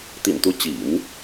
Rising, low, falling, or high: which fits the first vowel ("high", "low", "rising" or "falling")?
low